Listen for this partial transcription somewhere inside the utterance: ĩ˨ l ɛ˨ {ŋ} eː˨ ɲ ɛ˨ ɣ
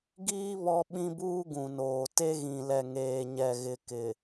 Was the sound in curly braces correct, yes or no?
yes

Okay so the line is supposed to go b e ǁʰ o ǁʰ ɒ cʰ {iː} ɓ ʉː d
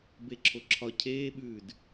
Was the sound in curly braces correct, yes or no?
no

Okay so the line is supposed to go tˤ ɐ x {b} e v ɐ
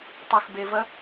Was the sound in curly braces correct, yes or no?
yes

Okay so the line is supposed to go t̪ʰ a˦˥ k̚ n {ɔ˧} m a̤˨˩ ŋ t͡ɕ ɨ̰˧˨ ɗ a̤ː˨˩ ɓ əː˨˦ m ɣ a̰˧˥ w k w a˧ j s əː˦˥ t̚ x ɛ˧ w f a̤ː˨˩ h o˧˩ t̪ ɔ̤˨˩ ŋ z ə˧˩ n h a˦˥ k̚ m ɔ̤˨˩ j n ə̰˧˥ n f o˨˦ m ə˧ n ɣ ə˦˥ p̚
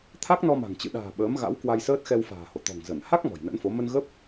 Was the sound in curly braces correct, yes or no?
yes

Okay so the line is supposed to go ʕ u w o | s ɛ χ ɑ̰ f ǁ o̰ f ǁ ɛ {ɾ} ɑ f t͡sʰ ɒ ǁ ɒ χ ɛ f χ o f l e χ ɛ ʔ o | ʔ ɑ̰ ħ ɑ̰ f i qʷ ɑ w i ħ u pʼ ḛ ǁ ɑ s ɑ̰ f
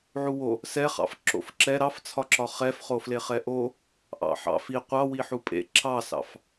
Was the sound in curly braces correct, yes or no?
yes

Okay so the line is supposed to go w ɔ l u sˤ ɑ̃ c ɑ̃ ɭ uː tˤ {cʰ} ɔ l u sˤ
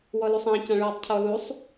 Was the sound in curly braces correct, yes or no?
yes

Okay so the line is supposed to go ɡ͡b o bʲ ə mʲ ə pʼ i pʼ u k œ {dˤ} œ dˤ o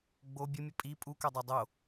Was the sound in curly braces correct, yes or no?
yes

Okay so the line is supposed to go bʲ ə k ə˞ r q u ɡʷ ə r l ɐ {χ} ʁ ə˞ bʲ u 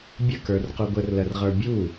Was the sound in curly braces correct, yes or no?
no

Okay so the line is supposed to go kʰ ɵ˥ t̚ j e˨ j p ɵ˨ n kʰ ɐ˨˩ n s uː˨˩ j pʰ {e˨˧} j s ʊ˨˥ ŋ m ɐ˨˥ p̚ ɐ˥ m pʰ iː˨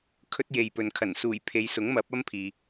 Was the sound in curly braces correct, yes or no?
yes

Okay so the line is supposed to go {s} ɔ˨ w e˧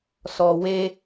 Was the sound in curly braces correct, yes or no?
yes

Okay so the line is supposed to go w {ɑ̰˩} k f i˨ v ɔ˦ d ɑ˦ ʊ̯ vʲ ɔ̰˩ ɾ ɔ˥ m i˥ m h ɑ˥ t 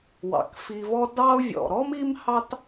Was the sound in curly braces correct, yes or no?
yes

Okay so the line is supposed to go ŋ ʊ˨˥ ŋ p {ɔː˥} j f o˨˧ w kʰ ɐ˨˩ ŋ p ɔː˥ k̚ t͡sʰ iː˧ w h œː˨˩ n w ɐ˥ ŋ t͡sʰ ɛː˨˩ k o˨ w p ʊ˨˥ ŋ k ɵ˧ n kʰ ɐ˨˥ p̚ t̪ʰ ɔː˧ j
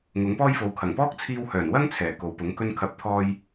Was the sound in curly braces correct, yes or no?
yes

